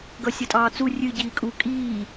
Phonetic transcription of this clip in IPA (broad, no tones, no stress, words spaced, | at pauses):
ɡʌsʲʌtʼɑːt͡su rʲɨ ɟiːkʼu kʼiː